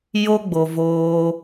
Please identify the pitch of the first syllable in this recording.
high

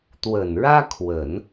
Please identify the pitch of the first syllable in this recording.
low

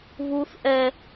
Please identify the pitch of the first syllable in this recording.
high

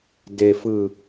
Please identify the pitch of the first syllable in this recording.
low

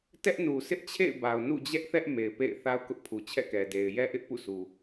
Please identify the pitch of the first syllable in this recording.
high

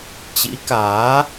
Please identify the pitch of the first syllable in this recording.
rising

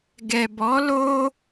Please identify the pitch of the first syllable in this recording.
low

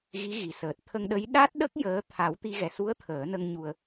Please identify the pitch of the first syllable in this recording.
rising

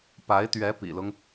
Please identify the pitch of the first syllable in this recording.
rising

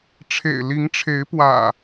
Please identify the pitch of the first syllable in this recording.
low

